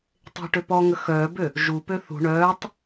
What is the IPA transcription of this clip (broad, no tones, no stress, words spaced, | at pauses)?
tˤe̤ʈø pɔŋə xœːbø | ʒupø θṳ ɳœːtˤ